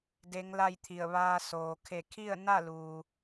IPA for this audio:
d e˧˥ ŋ l a˥˨ j t̪ʰ i˧˩ ə̯ ʋ aː˧ s oː˩ kʰ e˧˩ kʰ i˥˨ ə̯ n a˥˨ l uː˩

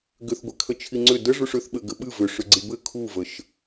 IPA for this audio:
ɡ ʏ θ ɡʷ ɛ kʰ ə t͡ʃʰ i ŋ͡ǀ ʏ d ə ʐ u ʂ ʏ θ ɓ ɘ ɡ ɘ ɓ ɨ v ʏ ʂ ʏ ɡ͡ǀ i b ɘ kʰ u v ə ʃ

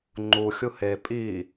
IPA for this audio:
ŋ͡ǃ u xʲ u h e pʼ i

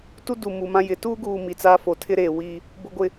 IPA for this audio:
t u˦ d u˨ m u˨ m ã˦ j ɪ˨˦ t uː˦ ɡ uː˨ m i˨ t͡s aː˦ f o˨ tʰ ɪ˦ ɾ eː˨ w iː˦ | b ʊ˦ ɡʷ ɪ˦

